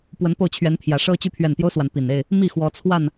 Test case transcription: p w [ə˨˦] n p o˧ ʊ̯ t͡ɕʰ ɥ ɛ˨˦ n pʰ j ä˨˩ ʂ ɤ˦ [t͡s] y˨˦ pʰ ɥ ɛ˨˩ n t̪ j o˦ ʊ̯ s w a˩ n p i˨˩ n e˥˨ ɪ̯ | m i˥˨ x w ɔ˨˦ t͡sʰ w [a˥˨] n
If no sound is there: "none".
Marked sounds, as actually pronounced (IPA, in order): ə˨˦, t͡ɕ, a˥˨

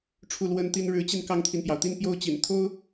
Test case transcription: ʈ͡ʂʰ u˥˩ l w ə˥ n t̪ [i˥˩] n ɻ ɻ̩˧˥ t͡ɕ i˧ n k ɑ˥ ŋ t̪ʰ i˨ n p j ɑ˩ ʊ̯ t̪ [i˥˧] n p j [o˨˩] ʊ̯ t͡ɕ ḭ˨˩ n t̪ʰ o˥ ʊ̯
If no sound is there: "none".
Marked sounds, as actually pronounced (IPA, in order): i˥, i˥˧, o˥˩

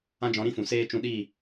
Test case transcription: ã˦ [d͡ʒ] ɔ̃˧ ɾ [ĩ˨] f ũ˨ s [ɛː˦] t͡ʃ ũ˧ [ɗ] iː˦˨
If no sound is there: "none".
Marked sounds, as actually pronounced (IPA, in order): d͡ʒ, ĩ˦, eː˦, ɗ

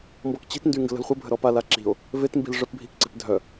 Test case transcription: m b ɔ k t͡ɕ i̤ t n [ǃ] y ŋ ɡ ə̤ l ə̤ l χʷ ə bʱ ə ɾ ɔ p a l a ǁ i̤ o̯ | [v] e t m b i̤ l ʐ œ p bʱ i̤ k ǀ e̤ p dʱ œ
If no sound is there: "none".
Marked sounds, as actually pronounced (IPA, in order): d, v

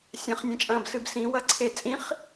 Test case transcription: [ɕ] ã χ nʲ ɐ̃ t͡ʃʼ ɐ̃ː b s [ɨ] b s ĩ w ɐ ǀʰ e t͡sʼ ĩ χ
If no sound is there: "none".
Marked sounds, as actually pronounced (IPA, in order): sʲ, ɨ

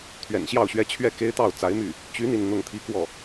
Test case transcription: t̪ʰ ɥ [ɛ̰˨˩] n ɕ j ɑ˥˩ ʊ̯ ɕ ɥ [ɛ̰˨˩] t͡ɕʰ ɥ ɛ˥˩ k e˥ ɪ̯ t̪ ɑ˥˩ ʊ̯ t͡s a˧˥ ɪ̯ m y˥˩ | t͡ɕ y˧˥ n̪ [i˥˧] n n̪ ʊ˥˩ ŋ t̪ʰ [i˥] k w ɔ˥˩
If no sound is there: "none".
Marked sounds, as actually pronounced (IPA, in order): ɛ̰˨˩, ɛ˥, i˥˧, i˥

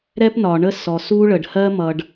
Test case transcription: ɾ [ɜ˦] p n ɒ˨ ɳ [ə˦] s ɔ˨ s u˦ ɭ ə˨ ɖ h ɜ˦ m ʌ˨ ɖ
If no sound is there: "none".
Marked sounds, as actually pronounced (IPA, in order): ɛ˦, ə˦

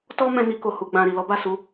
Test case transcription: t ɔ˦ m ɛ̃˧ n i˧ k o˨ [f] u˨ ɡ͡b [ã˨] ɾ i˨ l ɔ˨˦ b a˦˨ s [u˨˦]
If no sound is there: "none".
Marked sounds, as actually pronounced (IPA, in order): h, ã˨, u˨˦

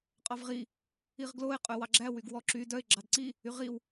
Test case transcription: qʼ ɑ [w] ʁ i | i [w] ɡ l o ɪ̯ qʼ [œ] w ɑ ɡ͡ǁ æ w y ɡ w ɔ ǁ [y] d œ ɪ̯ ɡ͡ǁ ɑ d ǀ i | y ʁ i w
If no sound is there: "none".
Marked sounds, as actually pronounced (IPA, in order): v, ʁ, œ, y

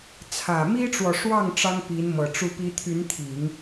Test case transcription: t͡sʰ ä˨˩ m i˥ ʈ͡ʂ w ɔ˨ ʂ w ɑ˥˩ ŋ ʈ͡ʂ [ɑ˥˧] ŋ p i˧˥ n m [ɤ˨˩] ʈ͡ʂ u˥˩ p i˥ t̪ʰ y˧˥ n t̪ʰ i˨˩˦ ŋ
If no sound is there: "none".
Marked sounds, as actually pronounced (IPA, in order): ɑ˥, ɤ˨˩

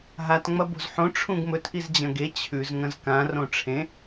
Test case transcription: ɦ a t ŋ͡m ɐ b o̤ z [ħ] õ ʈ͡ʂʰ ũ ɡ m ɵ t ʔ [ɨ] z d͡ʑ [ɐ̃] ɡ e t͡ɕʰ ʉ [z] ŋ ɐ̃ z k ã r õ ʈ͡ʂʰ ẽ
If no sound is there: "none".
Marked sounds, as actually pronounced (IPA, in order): ħ, i, ɐ̃, z

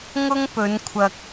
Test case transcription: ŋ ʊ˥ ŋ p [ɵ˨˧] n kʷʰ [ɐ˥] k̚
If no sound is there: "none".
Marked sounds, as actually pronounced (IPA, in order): ɵ˨˧, ɐ˨

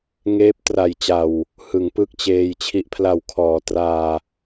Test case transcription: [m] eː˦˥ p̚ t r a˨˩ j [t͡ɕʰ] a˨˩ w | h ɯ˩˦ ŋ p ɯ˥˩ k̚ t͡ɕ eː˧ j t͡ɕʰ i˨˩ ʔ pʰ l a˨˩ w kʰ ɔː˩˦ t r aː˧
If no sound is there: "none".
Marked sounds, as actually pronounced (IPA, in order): ŋ, t͡ɕ

